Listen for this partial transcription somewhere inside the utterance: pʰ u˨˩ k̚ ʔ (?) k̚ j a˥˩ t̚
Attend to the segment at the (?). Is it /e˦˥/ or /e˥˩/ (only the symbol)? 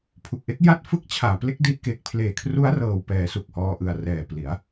e˦˥